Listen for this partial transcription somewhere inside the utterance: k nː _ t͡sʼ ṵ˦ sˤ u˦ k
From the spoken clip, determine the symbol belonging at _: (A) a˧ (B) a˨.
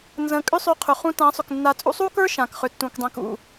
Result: A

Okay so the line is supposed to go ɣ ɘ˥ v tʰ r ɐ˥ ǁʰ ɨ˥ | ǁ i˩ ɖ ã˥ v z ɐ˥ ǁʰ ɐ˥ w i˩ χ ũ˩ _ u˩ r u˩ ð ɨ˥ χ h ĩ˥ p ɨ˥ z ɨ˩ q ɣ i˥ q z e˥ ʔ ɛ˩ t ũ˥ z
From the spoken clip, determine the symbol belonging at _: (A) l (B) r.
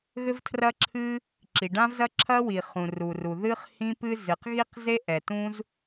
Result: B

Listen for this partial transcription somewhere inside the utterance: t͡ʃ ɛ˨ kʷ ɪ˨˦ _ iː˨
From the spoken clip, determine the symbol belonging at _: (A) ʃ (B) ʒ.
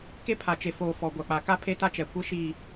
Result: A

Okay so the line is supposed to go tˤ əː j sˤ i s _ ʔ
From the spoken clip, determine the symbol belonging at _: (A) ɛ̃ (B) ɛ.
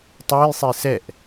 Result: B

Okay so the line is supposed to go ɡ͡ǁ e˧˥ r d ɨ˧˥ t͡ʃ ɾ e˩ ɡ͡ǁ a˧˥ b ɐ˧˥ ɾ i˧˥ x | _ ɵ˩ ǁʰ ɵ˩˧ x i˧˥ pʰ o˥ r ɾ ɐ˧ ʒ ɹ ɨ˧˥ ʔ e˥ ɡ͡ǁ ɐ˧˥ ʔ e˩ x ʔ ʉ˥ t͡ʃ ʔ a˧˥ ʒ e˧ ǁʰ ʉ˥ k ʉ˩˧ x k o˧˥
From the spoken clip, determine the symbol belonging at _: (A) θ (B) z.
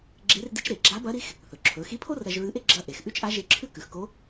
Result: A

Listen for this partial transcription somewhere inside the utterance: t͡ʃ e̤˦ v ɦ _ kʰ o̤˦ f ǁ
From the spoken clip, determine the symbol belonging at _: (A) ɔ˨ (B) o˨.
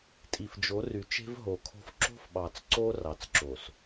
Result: B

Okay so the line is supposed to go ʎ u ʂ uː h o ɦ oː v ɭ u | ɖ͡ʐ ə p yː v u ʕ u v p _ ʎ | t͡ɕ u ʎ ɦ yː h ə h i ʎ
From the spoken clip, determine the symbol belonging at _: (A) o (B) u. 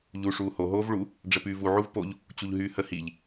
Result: A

